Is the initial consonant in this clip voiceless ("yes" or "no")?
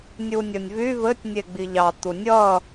no